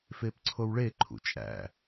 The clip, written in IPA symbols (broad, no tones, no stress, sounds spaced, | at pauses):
f e p ǀʰ o w ɭ e ǃʰ ṵ t͡ʃʼ æ̰